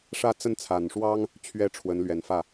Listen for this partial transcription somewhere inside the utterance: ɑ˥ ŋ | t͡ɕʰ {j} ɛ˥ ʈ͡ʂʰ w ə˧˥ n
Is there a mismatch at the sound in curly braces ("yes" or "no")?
yes